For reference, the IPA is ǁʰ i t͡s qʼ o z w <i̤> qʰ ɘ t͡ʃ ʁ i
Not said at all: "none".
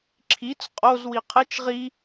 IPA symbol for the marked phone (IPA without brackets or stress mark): i